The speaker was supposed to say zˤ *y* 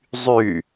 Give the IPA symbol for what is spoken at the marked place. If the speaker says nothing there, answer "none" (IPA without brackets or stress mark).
y